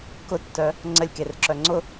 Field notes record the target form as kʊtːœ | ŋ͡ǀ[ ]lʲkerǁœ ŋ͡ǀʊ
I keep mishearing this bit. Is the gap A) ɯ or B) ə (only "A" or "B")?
B